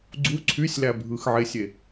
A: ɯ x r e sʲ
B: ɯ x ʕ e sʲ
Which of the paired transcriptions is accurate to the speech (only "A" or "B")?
B